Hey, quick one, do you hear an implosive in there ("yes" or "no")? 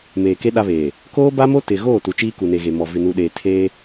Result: yes